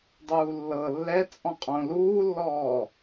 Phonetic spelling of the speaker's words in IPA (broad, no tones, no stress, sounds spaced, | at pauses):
dˤ uː lː ɤ lː ɛ t͡sʼ ɔ̃ qʼ õ l uː lː ɔː